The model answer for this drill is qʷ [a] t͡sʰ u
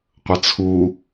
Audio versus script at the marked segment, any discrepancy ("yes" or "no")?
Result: yes